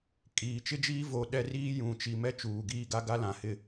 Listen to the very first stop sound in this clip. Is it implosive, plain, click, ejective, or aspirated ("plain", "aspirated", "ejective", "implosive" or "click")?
ejective